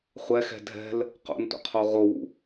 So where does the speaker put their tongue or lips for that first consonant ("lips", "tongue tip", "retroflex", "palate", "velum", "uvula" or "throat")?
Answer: uvula